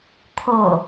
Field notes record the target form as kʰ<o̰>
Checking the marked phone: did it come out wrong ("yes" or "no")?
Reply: yes